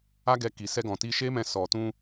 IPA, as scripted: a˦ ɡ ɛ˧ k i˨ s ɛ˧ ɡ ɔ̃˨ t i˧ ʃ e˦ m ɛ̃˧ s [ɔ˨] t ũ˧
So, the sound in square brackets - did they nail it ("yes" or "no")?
yes